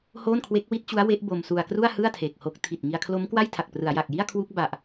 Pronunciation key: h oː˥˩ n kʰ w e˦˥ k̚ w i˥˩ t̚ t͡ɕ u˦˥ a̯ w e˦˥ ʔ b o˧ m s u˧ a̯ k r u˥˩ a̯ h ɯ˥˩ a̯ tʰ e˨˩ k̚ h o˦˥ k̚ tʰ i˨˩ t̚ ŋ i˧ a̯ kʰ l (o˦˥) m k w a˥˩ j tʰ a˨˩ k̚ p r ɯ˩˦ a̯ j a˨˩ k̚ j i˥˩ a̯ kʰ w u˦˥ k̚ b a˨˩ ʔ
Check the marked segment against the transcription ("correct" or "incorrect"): correct